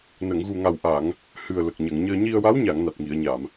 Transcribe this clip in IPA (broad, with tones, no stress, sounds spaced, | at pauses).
n ə˨˩˨ ŋ ɣ u˨˩ ŋ a˨˩ w ʔ a˨˩˨ ŋ | h ɨ˨˩ ə̯ l ə˨˩ k̚ ɲ ə˨˩˨ ŋ ɲ əː˧ ɲ i˧ ə̯ w a˧˥ w ɲ a˨˩˨ ŋ n a˨˩ t̚ ŋ i˨˩˨ ə̯ ɲ a˨˩˨ m